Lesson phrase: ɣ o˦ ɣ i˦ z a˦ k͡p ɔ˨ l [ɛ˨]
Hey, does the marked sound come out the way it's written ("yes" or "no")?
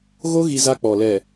yes